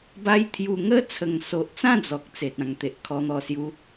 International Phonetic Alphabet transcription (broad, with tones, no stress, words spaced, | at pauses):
ba˦jt̪ʰju˧ ŋə˦ t͡sʰə˨˩ŋso˨ʔt͡sã˥˧ d͡zɔ˨k̚ t͡se˨t̚ã˨˩ŋt̪e˨ʔ kʰɔ˧n̪ɔ˧sju˧